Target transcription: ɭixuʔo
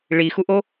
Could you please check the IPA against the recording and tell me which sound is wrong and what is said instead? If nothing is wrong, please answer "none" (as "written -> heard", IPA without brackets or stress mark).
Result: none